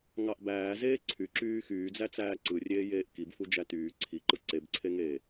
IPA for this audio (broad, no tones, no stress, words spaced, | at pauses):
ŋɑʔbæː zeːǀʰyǁyː xyːd͡zæt͡sæː ǀɯrʲeːjeːʔ kibfu d͡ʒætyː ǀʰiǃɯ ǀebǀʰeŋeː